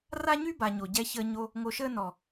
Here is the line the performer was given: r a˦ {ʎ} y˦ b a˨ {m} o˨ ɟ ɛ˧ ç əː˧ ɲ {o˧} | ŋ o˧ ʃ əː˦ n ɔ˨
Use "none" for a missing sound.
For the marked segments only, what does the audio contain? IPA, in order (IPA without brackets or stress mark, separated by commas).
ɲ, ɲ, o˧